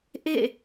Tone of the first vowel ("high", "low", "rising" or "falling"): falling